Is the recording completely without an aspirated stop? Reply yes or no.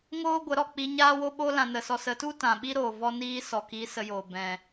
yes